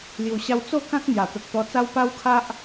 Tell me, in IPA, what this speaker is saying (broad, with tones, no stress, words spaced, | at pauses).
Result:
lju˨˩ɕa˧w t͡so˥˧kã˦k̚n̪ja˨˩ t̪ə˨k̚t̪ɔ˧t͡sa˦w pa˦wkʰa˦ʔ